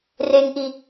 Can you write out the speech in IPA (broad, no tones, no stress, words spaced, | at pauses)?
reŋʔi